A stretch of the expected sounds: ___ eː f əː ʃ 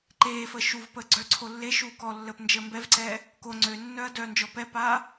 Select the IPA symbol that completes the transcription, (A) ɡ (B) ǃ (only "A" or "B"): B